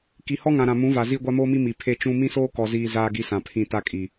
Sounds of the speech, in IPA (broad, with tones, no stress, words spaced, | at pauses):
ki˨hɔ˦ŋã˨ ɾã˨mũ˨˦va˨ ziː˦ɡʷa˦moː˦mi˦ mi˨ pʰe˦t͡ʃũ˦ mĩ˦soː˦kɔ˨ ziː˨ zaː˦ɡi˦sã˨ pʰĩ˨ ta˦kʼi˨